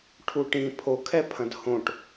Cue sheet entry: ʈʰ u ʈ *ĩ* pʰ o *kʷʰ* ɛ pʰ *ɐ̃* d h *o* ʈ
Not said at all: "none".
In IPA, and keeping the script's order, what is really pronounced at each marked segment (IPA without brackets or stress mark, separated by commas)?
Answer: ĩ, kʰ, ɐ̃, õ